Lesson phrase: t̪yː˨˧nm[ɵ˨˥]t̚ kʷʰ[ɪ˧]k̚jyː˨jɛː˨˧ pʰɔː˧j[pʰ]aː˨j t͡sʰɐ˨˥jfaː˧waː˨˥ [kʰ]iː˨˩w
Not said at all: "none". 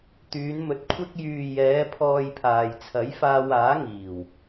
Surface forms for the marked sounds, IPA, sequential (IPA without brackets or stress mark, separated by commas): ɵ˨˥, ɪ˧, pʰ, ŋ